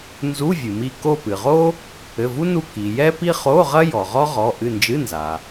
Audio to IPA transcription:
n z u˧˥˧ vʲ ɨ˩ m i˦˨ k o˦˨ p ɨ˩ ʁ o˥ | ɘ˩˧˩ v u˥ n u˦˨ k i˩ j ɛ˥ p i˥ χ o˧˥˧ ʁ ɐ˥ j ɔ˩ ʁ ɔ˥ ʁ ɔ˩˧˩ ʔ ɨ˦˨ n d͡ʒ ɨ˧˥˧ n z a˩

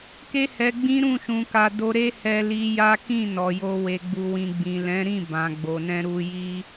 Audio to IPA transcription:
k e˦ h ɛ˧ ɡ͡b ĩ˦ ɾ ũ˦˨ ʃ ũ˧ k a˧ d o˧ ɾ e˦ h ɛ˧ l i˧ j a˦ k ĩ˦˨ n ɔ˨ j o˧ w e˨ ɡ͡b u˨ w ĩ˨ ɡ͡b ĩ˨ l ɛ̃˨˦ ɾ ĩ˦˨ b ã˨ ɡ͡b o˨ n ɛ̃˧ ɾ u˧ j i˦

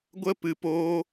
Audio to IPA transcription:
ɡʷ ə˦ p ɨ˧ p oː˦

